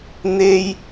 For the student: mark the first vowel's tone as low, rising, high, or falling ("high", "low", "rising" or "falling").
low